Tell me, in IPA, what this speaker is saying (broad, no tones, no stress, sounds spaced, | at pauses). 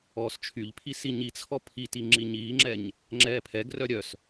ɔː s t͡ʃʰ y ʎ pʰ i s i ɲ i t͡sʰ ɔ pʰ i t i ŋ͡ǁ i ɲ iː ŋ͡ǁ ɛ ɲ | ŋ͡ǁ ɛː pʰ ɛ ɡ r œ ɾʲ œ s